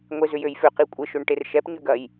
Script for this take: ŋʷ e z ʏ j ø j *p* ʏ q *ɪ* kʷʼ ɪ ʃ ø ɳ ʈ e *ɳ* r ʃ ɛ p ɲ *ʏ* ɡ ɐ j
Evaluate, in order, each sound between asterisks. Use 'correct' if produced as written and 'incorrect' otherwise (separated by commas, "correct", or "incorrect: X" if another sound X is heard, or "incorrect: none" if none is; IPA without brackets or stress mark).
incorrect: f, incorrect: i, incorrect: none, correct